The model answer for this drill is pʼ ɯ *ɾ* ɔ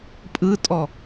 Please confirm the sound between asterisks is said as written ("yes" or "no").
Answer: no